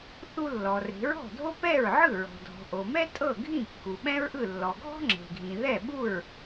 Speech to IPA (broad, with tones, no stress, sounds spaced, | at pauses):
θ u˧ lː ɔ˩ r e̤˩˥ ɹ ɔ̤˥˩ dʱ o˥ p ɛ˥˩ ɹ ʕ ɯ˥˩ ɹ ɔ̤˩ dʱ ɔ̤˩ ʔ o˩ m ɛ˥ tʼ ɤ˥˩ ɡʱ ĩ˥˩ kː u˩ ɓ ɛ̃˥ ɹ ʔ ɯ˥˩ lː ɔ˩ ɡʱ ɔ̤˥ ŋ͡ǁ e̤˩ ɡʱ ĩ˩ ð ɛ˥˩ ɓ u˥˩ ɹ